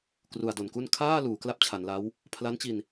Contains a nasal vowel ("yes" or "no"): no